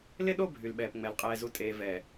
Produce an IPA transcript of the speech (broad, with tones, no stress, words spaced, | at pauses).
lɪ˦ɗo˦˨ bʱy˨lɓɛː˨pŋ͡mɛ˨l qʼɛː˨zu˨ tʼeː˨vɛː˨